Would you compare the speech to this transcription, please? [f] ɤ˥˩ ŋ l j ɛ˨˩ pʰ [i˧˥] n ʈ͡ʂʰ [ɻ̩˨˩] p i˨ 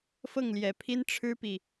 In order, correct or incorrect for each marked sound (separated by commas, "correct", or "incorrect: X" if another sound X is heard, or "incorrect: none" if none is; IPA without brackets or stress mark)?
correct, incorrect: i˥, incorrect: ɻ̩˥